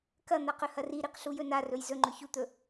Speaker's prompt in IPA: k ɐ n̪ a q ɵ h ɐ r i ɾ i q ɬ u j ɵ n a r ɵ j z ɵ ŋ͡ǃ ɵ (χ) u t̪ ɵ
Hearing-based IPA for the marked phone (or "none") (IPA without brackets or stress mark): ç